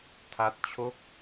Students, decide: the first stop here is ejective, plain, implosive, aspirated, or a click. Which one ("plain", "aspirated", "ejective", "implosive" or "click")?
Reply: aspirated